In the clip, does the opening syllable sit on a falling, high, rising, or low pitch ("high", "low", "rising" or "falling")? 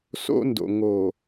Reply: high